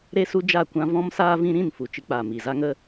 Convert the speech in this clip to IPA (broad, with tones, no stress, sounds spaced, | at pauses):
ɾ e˦ s u˦ d͡ʒ a˦˨ kʷ ã˦ v ɔ̃˦ m s aː˦ v ĩ˦ ɾ ĩ˦˨ n f u˨ t͡ʃ ɨ˧ k͡p aː˨ m i˨ z a˦ ŋ ə˦